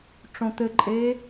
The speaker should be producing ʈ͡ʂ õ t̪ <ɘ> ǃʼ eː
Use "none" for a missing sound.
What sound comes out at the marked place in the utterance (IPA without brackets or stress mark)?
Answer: ɘ